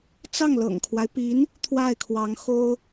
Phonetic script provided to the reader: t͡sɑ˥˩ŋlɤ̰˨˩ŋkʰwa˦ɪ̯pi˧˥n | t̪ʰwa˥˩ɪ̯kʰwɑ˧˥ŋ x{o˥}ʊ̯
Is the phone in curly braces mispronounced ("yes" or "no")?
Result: no